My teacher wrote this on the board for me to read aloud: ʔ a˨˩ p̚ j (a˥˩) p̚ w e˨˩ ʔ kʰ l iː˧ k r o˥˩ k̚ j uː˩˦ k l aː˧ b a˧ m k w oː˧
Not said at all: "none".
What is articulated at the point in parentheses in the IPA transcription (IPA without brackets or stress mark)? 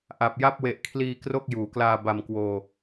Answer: a˥˩